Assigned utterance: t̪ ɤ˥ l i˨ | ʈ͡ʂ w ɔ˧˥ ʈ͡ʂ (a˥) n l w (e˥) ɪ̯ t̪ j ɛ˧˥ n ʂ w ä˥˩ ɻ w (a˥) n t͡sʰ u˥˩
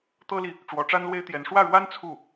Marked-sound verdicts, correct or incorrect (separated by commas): correct, correct, correct